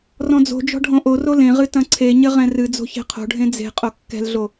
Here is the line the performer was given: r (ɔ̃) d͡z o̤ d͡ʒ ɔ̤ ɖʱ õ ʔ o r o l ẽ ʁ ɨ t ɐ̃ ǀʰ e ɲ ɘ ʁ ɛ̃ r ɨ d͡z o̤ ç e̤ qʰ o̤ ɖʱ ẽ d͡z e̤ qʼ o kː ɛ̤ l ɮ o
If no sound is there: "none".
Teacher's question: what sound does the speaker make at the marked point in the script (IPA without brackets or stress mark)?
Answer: ɔ̃